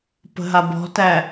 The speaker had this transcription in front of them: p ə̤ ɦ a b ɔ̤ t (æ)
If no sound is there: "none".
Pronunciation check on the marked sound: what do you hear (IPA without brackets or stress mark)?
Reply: æ